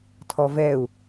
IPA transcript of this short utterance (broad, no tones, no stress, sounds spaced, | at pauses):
tʰ ɔ v ɛ u̯